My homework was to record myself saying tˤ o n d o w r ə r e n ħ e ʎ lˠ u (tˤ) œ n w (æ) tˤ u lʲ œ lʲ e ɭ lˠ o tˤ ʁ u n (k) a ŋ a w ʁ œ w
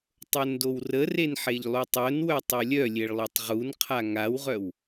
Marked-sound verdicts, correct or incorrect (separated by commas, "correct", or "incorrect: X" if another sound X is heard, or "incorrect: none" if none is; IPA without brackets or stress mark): correct, incorrect: œ, incorrect: qʰ